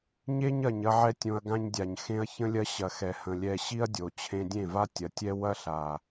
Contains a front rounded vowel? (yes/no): no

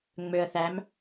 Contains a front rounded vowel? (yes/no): yes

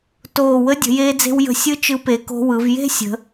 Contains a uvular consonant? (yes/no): no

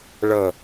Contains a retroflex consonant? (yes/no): yes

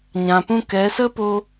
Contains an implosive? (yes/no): no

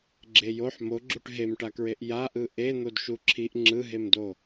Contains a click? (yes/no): yes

